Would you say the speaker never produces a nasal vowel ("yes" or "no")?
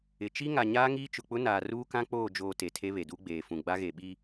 no